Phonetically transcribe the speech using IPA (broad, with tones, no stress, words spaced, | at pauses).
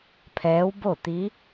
pʰɛː˧˥wbo˥˨t̪i˧˥